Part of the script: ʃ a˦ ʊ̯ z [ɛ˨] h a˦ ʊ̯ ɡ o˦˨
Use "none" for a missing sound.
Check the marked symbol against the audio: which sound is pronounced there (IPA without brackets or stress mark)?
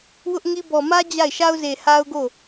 e˨